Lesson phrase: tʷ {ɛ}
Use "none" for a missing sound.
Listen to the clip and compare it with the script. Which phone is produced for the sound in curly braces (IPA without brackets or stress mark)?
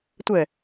ɛ